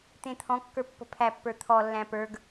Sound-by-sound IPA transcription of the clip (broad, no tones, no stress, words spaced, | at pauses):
t̪ẽt̪ʰɔ̃kːə˞ pːə̤pʰæpːə˞ t̪ʰɔlːæ̃ pə˞ɡ